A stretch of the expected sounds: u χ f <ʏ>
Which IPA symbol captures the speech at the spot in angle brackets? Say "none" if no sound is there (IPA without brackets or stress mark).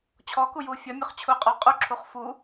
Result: u